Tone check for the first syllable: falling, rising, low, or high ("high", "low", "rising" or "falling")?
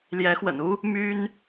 rising